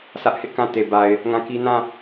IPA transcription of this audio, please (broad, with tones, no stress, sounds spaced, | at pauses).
sʰ ä˦ ʔ h ɪ˦ ʔ k ã˦˨ t e˨ b a˨ ɪ̯ | ŋ ã˦˨ k i˦ n ã˦˨